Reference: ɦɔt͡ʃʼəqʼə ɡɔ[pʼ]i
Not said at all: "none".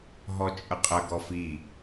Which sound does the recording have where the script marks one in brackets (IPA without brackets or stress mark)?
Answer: f